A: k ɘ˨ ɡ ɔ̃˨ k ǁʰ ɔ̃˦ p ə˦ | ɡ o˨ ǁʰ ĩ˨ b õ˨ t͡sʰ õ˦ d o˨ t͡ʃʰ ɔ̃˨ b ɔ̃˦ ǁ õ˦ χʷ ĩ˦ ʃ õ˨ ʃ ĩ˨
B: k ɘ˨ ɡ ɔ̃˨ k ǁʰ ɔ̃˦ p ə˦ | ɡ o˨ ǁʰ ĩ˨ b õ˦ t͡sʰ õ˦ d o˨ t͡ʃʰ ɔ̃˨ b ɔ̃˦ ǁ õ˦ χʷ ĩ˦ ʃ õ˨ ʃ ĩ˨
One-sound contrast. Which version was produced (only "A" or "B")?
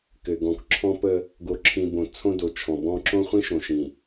A